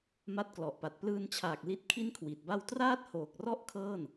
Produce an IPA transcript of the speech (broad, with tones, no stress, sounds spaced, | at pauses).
m a˦˥ t̚ k l ɔ˨˩ ʔ p a˨˩ t̚ p l ɯː˧ n t͡ɕʰ aː˨˩ k̚ l i˦˥ t̚ kʰ i˥˩ n kʰ w i˨˩ t̚ b a˥˩ w t r aː˥˩ t̚ h oː˨˩ k̚ r ɔ˥˩ ʔ kʰ ɤː˥˩ n